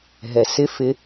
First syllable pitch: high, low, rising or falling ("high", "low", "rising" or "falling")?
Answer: low